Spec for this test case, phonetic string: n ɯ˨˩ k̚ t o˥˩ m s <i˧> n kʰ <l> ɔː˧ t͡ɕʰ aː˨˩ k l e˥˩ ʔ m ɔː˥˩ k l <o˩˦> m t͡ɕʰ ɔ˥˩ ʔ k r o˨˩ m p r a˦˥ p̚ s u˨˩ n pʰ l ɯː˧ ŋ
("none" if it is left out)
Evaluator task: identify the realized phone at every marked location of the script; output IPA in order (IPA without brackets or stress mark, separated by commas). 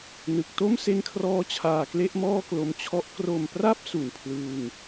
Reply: e˧, r, o˧